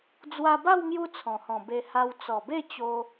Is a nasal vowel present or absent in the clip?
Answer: present